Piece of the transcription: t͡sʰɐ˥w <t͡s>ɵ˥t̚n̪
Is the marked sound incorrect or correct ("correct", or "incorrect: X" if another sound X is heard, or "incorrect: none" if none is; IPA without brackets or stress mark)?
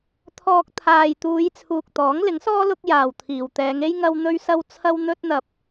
incorrect: n̪